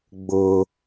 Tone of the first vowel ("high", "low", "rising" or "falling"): low